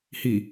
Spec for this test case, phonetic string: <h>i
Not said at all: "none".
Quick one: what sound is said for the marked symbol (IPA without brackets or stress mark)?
h